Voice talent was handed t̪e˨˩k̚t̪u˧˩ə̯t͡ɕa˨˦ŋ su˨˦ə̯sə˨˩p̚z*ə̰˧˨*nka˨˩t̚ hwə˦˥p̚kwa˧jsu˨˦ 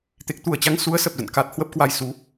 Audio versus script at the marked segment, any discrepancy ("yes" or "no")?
no